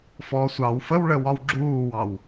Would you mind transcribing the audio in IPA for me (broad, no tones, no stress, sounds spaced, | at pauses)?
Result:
f ɔ sʷ ɑ w f ə w ɭ ə w ɒ w ɡ͡ǁ uː w ɑ w